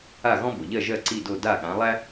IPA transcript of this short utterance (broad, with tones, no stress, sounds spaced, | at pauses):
a˥˩ ɣ ɔ̃˥ b o˩ ʎ ɜ˥˩ ʒ ɜ˥˩ ǀ i˥˩ d o˥˩ d a˥˩ ɠ ã˩˥ lˠ æ˥